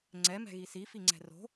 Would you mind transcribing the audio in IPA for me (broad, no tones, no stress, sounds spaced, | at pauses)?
ŋ͡ǀ ɛ m ɛ̤ ɣ i s i f i ŋ͡ǀ ɛ̤ r o̤